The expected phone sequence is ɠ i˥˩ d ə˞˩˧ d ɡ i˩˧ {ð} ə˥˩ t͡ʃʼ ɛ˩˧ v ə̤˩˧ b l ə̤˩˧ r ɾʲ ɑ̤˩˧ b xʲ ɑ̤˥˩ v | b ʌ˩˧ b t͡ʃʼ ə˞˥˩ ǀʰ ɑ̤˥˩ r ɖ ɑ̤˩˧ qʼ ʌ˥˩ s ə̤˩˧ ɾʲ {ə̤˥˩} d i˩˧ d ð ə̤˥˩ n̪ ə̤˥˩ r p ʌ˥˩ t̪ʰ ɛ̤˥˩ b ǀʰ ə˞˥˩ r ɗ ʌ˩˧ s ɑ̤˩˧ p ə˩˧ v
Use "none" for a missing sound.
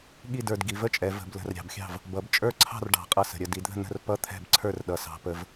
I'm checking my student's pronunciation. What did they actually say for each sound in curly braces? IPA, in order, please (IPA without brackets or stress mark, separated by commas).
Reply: v, ə˥˩